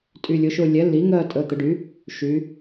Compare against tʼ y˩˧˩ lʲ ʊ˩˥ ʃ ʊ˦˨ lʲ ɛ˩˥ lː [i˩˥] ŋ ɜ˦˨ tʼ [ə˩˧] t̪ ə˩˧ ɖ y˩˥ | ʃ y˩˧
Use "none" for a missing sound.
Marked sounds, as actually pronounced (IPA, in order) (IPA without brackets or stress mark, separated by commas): i˩˥, ə˩˧˩